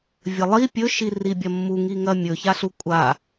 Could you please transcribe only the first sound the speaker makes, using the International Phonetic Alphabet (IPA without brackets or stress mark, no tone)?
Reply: vʲ